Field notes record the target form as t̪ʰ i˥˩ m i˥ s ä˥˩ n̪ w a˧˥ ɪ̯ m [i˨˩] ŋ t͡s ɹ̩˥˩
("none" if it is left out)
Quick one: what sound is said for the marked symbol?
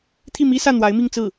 i˥˧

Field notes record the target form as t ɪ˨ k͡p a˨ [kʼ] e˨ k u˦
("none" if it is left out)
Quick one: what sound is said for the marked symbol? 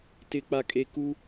kʼ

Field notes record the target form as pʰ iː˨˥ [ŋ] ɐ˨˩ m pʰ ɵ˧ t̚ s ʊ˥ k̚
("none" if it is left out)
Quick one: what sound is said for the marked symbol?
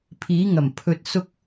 ŋ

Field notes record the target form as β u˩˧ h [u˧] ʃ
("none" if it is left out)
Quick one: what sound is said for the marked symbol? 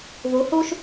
u˧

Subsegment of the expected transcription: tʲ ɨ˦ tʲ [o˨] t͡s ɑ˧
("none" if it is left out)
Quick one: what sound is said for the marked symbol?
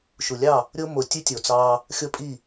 o˨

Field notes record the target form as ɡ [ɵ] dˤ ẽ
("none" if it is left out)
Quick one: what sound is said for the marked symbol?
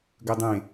ɵ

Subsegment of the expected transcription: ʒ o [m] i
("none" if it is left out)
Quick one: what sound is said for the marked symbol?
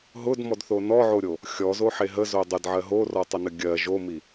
m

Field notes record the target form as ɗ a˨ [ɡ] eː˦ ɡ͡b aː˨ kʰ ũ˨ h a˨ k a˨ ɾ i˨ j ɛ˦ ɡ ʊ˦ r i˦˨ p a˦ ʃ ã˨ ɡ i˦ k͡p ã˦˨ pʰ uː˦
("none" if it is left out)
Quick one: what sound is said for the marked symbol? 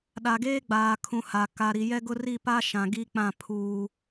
ɡ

